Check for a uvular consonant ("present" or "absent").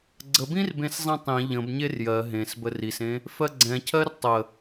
absent